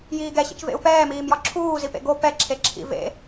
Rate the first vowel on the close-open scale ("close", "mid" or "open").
close